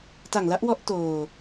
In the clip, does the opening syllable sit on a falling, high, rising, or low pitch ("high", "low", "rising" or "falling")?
low